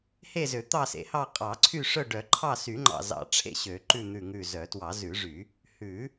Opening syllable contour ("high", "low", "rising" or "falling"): falling